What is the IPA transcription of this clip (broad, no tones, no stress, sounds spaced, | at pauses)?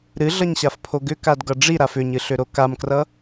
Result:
ɾ ɨ ɮ ʌ ɲ ɕ a f pʰ o ɡ ʏ k a d ɡ ʌ ɖ͡ʐ i ɾ a f ʏ ɲ ɨ ɬ ʏ ɾ o k a m k r ʌ